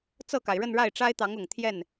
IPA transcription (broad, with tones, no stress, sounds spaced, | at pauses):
t͡s ɤ˥˩ k a˩ ɪ̯ ɻ ə˥˧ n ɻ a˥˩ ɪ̯ ʈ͡ʂ a˥ ɪ̯ t̪ ɑ˧˥ ŋ ʊ˨˩ ŋ t̪ʰ j ɛ˥˩ n